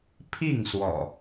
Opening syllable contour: falling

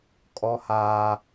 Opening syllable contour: high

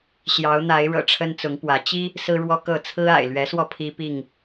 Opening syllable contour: rising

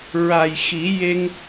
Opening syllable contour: low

